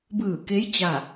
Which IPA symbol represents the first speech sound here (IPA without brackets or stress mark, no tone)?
b